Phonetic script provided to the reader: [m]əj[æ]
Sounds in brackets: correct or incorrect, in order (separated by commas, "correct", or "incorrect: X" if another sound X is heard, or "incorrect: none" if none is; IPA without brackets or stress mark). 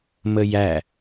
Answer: correct, correct